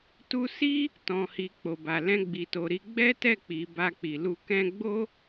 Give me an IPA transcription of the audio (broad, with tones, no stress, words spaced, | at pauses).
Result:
tu˧si˦ | tɔ̃˨hi˨ k͡po˨ba˨ lɛ̃˧ɡ͡bi˨to˨ ɾi˧ ɡ͡bɛ˦tɛ˦˨k͡pi˨ ba˧k͡pi˨lu˧ kɛ̃˧ɡ͡bo˦